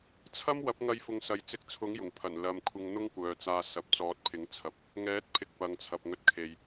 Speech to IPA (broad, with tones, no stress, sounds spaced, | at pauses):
t͡sʰ ɐ˥ m w ɐ˨˥ p̚ ŋ ɐ˧ j f ʊ˨ ŋ s ɐ˨˥ j t͡s ɪ˧ k̚ t͡sʰ ʊ˨˥ ŋ j ʊ˨˩ ŋ pʰ ɐ˨˩ n l ɐ˨ m kʷʰ ɪ˧ ŋ n̪ ʊ˥ ŋ kʷ œː˨ t͡s aː˧ s ɐ˨ p̚ t͡s ɔː˨˥ t̚ pʰ ɪ˨˥ ŋ t͡sʰ ɐ˨˥ p̚ | ŋ ɛː˨˥ t̚ pʰ ɪ˧ k̚ p ɐ˨˧ ŋ t͡sʰ ɐ˨ p̚ ŋ ɵ˧ t̚ kʰ e˨ j